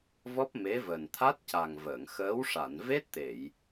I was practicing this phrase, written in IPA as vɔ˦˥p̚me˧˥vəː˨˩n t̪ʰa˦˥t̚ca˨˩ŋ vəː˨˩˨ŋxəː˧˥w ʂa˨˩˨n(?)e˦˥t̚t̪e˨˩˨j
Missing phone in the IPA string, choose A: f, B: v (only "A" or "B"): B